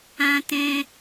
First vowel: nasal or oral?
nasal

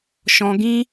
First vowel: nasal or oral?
nasal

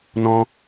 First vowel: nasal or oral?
nasal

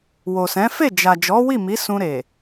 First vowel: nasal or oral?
oral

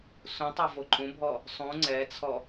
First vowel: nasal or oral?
nasal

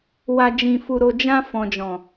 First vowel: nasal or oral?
oral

